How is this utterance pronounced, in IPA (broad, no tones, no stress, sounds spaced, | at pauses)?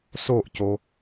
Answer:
s o ʔ c o